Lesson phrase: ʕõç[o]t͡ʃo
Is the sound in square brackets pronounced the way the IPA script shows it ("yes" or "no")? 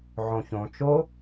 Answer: no